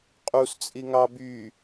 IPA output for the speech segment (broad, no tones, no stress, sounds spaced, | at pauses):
qʼ u s t͡sʼ i ŋ ɑ b y